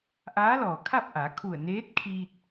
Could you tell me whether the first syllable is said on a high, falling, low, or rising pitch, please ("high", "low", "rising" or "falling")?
rising